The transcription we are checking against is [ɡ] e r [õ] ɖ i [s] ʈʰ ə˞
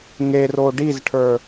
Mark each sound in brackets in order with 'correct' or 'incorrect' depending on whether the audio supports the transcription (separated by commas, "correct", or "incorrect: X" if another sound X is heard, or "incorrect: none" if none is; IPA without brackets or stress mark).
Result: incorrect: ŋ, incorrect: o, incorrect: z